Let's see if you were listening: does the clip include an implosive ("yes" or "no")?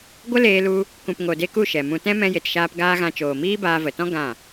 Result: no